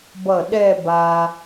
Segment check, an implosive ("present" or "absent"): present